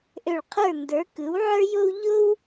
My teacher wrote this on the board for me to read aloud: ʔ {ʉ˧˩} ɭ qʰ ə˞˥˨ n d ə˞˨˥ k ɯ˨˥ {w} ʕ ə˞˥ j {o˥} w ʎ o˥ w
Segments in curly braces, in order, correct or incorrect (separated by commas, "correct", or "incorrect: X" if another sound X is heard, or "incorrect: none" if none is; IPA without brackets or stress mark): incorrect: ø˧˩, correct, correct